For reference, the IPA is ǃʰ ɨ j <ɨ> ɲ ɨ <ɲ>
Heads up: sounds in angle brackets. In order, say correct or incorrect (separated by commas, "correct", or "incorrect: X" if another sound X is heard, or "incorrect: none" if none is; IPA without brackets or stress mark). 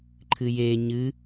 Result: incorrect: e, incorrect: none